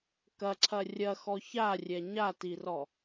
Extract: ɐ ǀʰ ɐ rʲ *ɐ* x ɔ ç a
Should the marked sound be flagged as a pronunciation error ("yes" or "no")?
no